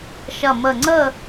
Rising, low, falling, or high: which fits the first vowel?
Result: low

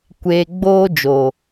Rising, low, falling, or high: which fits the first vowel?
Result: low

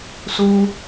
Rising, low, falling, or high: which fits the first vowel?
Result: high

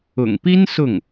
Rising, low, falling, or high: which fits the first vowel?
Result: low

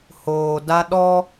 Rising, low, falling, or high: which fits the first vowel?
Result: low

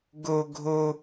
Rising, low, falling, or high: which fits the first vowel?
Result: high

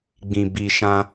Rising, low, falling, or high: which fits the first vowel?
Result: low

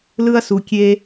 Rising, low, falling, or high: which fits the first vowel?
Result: high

